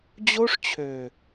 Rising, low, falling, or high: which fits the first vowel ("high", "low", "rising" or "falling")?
high